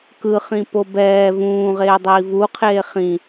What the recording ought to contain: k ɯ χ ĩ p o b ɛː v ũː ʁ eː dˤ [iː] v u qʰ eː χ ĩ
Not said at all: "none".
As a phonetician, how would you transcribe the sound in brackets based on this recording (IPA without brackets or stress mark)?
iː